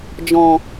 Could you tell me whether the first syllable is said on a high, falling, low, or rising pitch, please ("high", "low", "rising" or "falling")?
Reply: low